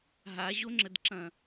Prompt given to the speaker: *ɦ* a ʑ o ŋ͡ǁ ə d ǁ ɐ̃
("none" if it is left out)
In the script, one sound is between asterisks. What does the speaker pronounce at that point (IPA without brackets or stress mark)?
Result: ɦ